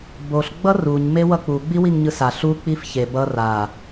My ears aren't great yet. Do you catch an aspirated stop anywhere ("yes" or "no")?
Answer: no